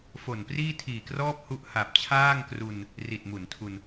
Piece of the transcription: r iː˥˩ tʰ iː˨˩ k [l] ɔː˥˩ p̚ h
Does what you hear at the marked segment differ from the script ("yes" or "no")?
yes